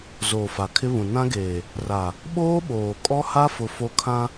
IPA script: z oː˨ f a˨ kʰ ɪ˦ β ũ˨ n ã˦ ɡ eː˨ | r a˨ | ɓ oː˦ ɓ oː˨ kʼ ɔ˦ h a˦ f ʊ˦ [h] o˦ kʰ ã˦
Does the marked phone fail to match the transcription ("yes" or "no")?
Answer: yes